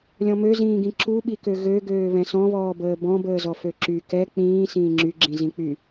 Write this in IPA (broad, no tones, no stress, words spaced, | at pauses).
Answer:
lʲɔ̃møzĩːɡĩ ǁuɓikø ɣøɡøː βɛ̃sɔ̃βɔːbəː bɔ̃bəːzɔ føǁy kɛ k͡pĩː sĩːŋ͡ǁyɡ͡ǁĩ zĩk͡py